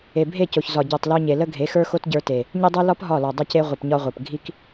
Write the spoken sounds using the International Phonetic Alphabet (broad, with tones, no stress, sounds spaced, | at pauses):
e˨ bʱ e˦˨ c o˨ ç z ɒ˨ ɟ ə˞˨ tˤ l o˧ ɲ e˨ l ə˦ ɡʱ e˨˦ x ə˞˦ x o˦ t ɟ ə˞˧ t e˨ | ɲ e˧ dˤ ə˞˧ l ɒ˦ p ɦ ɒ˦˨ l ɒ˨ dˤ ə˧ c e˧ ʁʷ i˨ p ɲ ɒ˧ ʁʷ ə˞˨ p ɡʱ i˧ k